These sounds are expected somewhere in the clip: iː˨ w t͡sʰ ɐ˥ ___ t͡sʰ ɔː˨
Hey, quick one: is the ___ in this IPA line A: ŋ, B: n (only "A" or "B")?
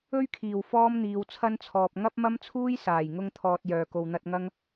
B